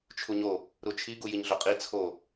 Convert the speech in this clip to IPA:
t͡ʃʰ u ɲ o | ɾ u t͡ʃʰ i ɡ u j i ɲ ɮ o qʼ i t͡sʰ o

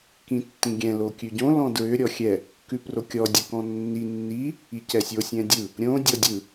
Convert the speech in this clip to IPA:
k ĩ tː ĩ ɡʲ ɛ̃ l o kʲ ʉ ɟ õ l ɔ̃ d ɹ ʏ ɾʲ ɔ xʲ ɛ | k ʉ p r o kʲ ɔ dʲ ʉ k ɔ̃ nː i nː i | i c ɛ sʲ o sʲ ɛ̃ dʲ ɯ | ɾʲ õ dʲ ɔ dʲ ɯ

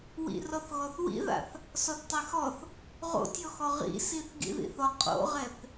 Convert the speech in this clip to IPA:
w ḭ r ɔ θ ɣ ɔ θ w ḭ ð a̰ θ | s ɔ θ tˤ e x ɔ θ | ʁ o̰ tʲ ɔ x ɔ ʁ ḭ s i θ ɡ ḭ ð ḭ θ ɔ qʼ o̰ ʁ ɛ θ

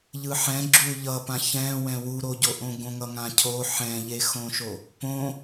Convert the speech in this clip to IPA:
ʎ ɯ ħ ɛ̃ ɡ͡ǁ u ʎ ʌ p ã ç ɛ̃ w ɛ̃ w u ɾ o ɟ o ʔ õ ɡ õ ŋ ʌ ŋ ã cʰ o ħ ɛ̃ ʎ e x õ ʃ o | p õ

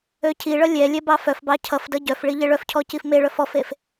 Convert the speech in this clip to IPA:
ø cʰ i ɭ ʌ lʲ ɛ lʲ ɛ b ɑ f œ f b ɑ cʰ ʌ f d ʌ ɟ œ f ɭ i ʎ e ɭ œ f cʰ ɔ c i f m e ɭ œ f ɔ f e f

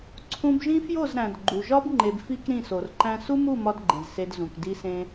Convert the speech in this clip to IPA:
ǀʰ ũ˧ b ʒ ĩ˦ f j o˦˨ z ɾ æ̃˨ d ɡ͡ǃ u˨ ʒ ɒ˦ b ŋ͡ǃ e˨ b f i˧ k ɾ ĩ˦˨ s o˨ r ǃ æ̃˦ s u˦ m u˦˨ m ɒ˦ d ɡ͡ǃ ẽ˨ z s e˧ d z ũ˨ k d i˦ s ẽ˦

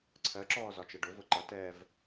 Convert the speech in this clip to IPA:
ǀʰ ɜ ǁ ɔː z ɒ t͡ʃ ɛ ɖ ʊ v ʊ ǃ ʌ t ɛː v

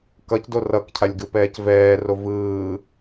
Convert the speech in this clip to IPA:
k ʌ c d o r ʌ k cʰ a lʲ ɡ ɯ p ɛː c v ɛː r o v ɯː

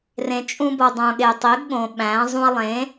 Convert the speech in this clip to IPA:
r ẽ˨ t͡ʃʼ ũ˧ b o˨ dˤ õ˨ ɠ e˨ tˤ i˨˦ ɡ ɠ õ˨ ɓ æ̃˨˦ zˤ ũ˧ ɐ̯ lˠ ẽ˨˦

